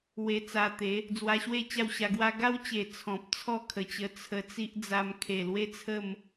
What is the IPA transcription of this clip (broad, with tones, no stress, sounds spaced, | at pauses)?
w e˧ t͡s a˧ t̪ e˨˦ | d͡z w a˧ ɕ w e˥˧ t͡ɕ a˥˧ w ɕ a˧ ɡ w a˦ ɡ a˦ w t͡ɕ e˨˩ t͡sʰ ɔ̃˨ p̚ t͡sʰ ɔ˥˧ kʰ ə˨˩ t͡ɕ ə˧ t͡sʰ ə˧ t͡s i˦ ʔ d͡z a˧ m kʰ e˨˩ l w e˦ t͡sʰ ə˥˧ m